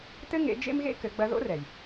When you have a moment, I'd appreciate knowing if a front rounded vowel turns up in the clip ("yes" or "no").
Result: no